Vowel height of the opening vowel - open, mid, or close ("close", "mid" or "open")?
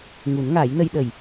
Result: close